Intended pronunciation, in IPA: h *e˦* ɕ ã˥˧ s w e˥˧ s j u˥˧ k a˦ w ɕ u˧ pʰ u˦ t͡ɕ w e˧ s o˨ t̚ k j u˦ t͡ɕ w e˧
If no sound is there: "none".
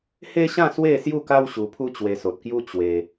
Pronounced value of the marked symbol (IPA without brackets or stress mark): e˦